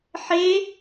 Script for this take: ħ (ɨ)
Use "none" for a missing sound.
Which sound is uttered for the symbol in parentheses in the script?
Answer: e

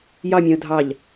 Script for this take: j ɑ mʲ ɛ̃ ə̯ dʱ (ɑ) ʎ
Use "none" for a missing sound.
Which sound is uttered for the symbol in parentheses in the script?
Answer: ɑ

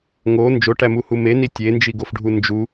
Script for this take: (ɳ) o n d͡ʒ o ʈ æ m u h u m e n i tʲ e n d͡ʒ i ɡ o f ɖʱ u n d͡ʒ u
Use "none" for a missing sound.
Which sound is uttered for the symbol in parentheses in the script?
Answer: ŋ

